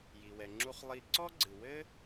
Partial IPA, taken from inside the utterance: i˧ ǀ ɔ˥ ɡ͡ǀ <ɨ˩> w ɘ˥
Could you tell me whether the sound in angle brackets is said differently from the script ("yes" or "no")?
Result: no